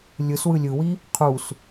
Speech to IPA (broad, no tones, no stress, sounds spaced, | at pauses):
lʲ ɯ s w ɯ lʲ ɯ w i | qʰ u s